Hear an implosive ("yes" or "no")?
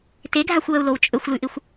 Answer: no